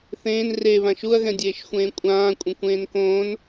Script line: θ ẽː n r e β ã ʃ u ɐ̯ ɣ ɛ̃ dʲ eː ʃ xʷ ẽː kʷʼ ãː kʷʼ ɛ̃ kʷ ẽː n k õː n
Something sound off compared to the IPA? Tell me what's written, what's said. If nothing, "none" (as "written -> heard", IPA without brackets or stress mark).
none